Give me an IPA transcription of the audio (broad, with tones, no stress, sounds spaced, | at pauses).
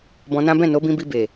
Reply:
b ɔ̃˧ n ã˦ b ɛ̃˦˨ n o˨˦ b ĩ˧ b i˧ b e˨